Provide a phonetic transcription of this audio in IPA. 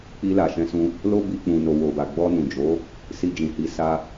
k͡p i˧ l a˨ ʃ ɛ̃˧ s ũ˧ | l o˦ b i˧ k͡p ũ˨ n o˨ w o˨ b a˨ ɡ͡b ɔ˧ n ũ˨ d͡ʒ o˨˦ | s i˧ d͡ʒ ĩ˨ h i˨˦ s a˧

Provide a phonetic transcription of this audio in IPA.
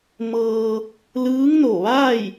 m ɤː˧ | l ɯː˧˥ ŋ n o˧˩ ʋ aː˥˨ j

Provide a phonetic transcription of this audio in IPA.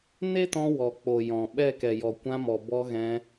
n e˦ t ɔ̃˧ w ɔ˨ k͡p o˨ j ɔ̃˨ ɓ ɛ˦˨ k ɛ˨ j ɔ˨ kʷ ã˧ m ɔ˨ b ɔ˧ ɣ ɛ̃˧

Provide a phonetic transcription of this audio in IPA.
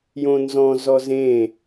j õ n z ɔ̃ z ɔ z ẽ

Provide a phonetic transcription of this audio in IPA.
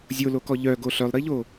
zʲ o l o k ɔ ʎ œ ɡ o ɬ œ lˠ ɾ i ʎ o

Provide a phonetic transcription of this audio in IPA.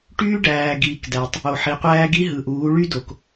ʈ yː˦ ɖ æː˨ ɡ iː˨ k d æ˨ tˤ | o˨ ħ i˨ qʷ æː˦ ɡ i˦ ɦ ɯ˨ ʔ uː˨˦ ɭ y˦ d o˨ k

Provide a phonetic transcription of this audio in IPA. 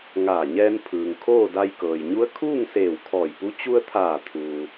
ŋ aː˧˩ ɲ ɛː˧ n pʰ ɯː˩ ŋ kʰ oː˥˨ d a˧ j k ɤː˩ j ɲ u˧˥ ə̯ kʰ uː˥˨ ŋ s eː˧˩ w kʰ ɔː˧˩ j p u˧˥ t͡ɕ u˧ ə̯ t̪ʰ aː˧˩ t̪ʰ uː˩

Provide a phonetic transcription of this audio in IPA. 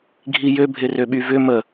ɡʱ i j ø bʱ ɪ r ø ɓ y v ʏ m ə

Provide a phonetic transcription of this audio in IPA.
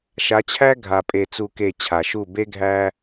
ʃ a˨˦ t͡ɕʰ æ˦ ɡʱ a˨ pʼ e˨ t͡s u˨ k e˨ t͡ɕʰ a˨ ʃ u˦˨ b e˦ ɡʱ æ˦

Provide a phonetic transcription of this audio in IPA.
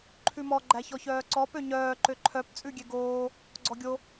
ǃʰ ʉ m ɔ ɡ͡ǃ æ ç ɔ ç œː ǀ ɔ p ø ɲ œː ǃ ø ǃʰ œ p t͡sʼ ʉ ɡʲ ɛ ɡ oː | ɡ͡ǀ ɔ ɡʲ o

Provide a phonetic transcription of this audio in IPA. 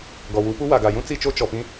ɡ ɔ˨ w u˨˦ p u˦ w a˨ ɡ a˨ j ũ˦ t͡s i˦˨ t͡ʃ o˦ t͡ʃ ɔ˨ p ĩ˦

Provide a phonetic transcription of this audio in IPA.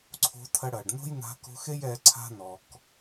ǀʰ o̤˧ tʰ ɐ˧ ɽ ɐː˩ ɖ n o̤˥ j n a̤˧ k o̤˧ x e˥ j ɛː˧ ǀʰ a̤˥ n ɔ˩ k

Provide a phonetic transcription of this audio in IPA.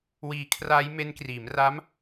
w iː˧ kʰ r aː˦˥ j m e˦˥ n k r iː˩˦ m r a˦˥ m

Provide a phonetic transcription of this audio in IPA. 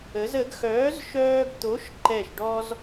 ə˨˥ z ə˨˥ ɡ x œː˨˥ z ʃ œː˦ ɡ t̪ o˨˥ ʃ ǃ ɛ˧˩ ʃ ɖ ɔ˦ z

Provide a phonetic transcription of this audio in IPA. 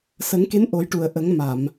s ə˨˩˦ ŋ k e˧˥ n ʔ o˨˩˦ j ʈ u˨˩˨ ə̯ ʔ ə˨˩˦ ŋ m a˨˩˨ m

